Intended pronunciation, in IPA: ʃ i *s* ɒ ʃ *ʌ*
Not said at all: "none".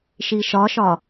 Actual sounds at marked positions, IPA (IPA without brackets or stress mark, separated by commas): ʃ, ɒ